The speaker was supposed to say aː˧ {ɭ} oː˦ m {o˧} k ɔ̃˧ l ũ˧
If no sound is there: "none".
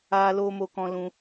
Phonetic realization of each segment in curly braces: l, o˧

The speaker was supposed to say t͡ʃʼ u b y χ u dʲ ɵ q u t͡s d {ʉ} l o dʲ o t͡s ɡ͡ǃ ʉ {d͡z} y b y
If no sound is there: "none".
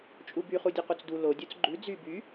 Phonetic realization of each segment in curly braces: u, d͡z

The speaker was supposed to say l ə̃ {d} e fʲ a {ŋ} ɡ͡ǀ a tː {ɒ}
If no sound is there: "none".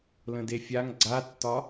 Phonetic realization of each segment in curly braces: d, ŋ, ɒ

